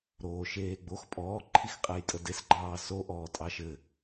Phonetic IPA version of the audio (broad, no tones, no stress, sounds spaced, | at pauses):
ɾ oː ʃ eː ɡ͡b o x pʼ ɔː ǃʰ i x qʼ ɛ j tʼ ə d e s ɡ͡ǃ ɑː s o ʔ ɔː tʼ ɑ ʃ ɘ